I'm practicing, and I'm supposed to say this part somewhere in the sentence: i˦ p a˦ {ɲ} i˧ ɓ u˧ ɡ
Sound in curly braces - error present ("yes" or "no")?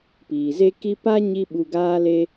no